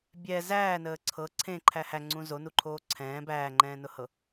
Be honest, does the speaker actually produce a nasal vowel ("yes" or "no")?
yes